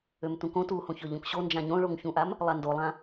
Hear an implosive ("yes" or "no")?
no